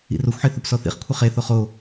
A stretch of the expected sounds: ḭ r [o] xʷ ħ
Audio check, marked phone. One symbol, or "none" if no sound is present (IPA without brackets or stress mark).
o